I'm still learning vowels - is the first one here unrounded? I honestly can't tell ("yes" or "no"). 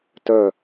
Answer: no